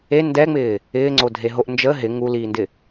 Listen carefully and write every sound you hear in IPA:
e n d ɛ ŋ͡m ɪː | ɪː ŋ͡ǀ o dʱ e ɦ o ʔ n d͡ʒ ə ɦ ɪ ŋ u l iː n d ɪ

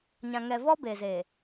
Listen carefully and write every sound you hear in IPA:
ɲ ã˨ ŋ ɛ˨ v ɔ˦ b eː˨ z eː˨

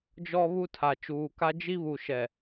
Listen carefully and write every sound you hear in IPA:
d͡ʒ ɔ˦ β u˦ tʰ a˨ t͡ʃ uː˨ k a˦ d͡ʒ i˦ β u˨ ʃ ɛ˨

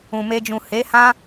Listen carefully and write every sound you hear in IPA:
ũ˨ m e˧ d͡ʒ ũ˨ h e˨˦ h ã˦

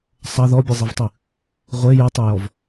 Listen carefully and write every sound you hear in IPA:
sˤ ɐ ð ɔ bʲ ɨ zˤ i v tˤ ɨ | ʁʷ e j ɨ tˤ e j ɔ v

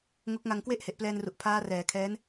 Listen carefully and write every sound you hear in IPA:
ŋ o˦˥ k̚ ŋ a˧ ŋ k w e˥˩ ʔ h e˨˩ ʔ p l ɛː˧ n r u˨˩ ʔ pʰ aː˦˥ r ɛː˩˦ kʰ ɛː˦˥ n

